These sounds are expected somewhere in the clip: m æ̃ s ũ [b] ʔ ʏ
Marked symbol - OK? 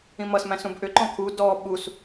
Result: yes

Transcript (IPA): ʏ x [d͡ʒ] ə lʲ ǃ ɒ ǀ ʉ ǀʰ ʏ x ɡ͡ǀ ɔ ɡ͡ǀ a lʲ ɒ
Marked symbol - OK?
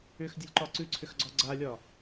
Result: no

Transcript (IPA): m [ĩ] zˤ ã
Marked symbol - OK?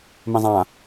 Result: yes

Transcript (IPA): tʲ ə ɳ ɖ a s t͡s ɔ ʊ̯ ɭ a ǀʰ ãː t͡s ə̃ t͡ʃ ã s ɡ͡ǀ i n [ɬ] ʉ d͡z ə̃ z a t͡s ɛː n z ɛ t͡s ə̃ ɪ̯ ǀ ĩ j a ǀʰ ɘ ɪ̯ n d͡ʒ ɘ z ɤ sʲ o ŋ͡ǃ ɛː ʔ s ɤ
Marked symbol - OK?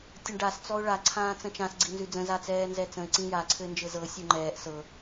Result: no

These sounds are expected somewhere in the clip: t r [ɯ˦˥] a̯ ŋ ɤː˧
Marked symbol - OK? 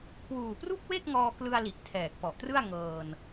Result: no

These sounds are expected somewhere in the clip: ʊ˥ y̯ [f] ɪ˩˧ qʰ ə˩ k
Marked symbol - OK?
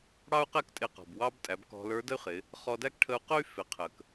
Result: yes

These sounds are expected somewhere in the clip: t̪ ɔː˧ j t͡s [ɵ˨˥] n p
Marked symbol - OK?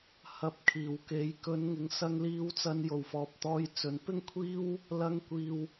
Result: no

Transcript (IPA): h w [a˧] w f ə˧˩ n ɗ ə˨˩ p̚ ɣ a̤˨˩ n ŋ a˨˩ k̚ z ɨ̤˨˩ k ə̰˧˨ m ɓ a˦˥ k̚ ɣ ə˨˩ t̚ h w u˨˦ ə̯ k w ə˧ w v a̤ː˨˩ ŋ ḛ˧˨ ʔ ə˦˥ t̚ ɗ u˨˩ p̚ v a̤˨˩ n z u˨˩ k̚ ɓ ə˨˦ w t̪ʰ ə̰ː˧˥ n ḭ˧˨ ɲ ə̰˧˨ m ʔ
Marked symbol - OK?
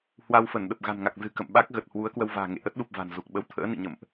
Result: yes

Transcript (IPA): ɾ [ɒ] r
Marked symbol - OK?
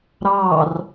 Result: no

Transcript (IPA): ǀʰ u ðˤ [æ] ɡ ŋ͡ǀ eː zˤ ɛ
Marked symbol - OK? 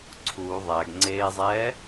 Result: yes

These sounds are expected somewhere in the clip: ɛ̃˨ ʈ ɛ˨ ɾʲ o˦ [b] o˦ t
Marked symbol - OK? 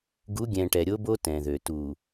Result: yes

